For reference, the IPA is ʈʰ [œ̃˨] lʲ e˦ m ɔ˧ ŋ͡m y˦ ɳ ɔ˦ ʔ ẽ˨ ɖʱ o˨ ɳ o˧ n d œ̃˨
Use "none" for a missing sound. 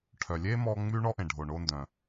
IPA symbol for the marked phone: œ˨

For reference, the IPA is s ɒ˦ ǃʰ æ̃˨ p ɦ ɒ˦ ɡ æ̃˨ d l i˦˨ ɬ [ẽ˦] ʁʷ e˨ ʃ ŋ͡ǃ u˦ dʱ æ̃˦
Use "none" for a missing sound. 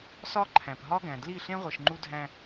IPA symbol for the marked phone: ẽ˦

